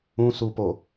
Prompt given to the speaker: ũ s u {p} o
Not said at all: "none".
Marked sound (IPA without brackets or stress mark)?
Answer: p